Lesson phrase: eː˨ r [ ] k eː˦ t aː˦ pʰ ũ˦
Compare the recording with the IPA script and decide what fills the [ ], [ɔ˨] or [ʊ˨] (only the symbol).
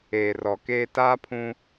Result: ɔ˨